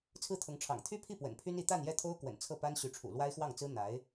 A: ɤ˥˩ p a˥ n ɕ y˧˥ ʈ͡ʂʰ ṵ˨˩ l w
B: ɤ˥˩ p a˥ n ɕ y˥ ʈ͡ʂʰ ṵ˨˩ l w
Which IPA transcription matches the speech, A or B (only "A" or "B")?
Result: A